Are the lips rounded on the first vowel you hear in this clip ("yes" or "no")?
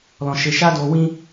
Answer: yes